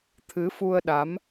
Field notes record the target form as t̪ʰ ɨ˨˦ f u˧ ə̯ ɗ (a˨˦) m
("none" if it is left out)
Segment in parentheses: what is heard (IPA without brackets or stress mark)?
a˨˦